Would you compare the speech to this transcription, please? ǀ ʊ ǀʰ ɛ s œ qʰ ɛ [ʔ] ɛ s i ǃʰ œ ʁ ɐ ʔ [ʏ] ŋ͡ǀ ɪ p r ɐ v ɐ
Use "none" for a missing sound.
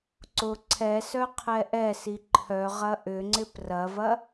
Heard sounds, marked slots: ʔ, ʏ

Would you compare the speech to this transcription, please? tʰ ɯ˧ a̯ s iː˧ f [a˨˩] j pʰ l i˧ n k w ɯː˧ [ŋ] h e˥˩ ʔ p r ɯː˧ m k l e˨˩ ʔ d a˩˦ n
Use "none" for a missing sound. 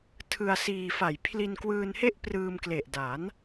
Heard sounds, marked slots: a˨˩, n

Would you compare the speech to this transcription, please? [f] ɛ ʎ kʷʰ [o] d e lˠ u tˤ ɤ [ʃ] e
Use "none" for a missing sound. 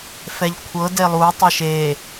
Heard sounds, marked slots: f, ɤ, ʃ

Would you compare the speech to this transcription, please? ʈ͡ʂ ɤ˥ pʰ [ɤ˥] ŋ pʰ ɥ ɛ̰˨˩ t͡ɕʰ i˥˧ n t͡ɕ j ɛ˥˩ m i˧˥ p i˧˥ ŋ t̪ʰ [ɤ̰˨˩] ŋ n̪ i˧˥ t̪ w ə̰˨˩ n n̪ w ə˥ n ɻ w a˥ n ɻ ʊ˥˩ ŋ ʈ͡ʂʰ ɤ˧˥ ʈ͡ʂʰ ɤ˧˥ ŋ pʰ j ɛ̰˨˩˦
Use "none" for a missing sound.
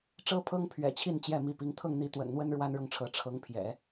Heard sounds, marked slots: ɤ˥, ɤ˥˩

